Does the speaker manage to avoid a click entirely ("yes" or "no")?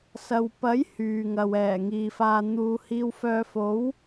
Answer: yes